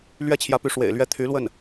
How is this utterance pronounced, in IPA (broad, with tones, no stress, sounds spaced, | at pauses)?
l ɥ ɛ˥ t͡ɕʰ j ä˧˥ p y˧˥ ʂ w ḛ˨˩ ɪ̯ l ɥ ɛ˥˩ t̪ʰ y˧˥ l w ə˥˩ n